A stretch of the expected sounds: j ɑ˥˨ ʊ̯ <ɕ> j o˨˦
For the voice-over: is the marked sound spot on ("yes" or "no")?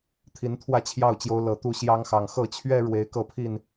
no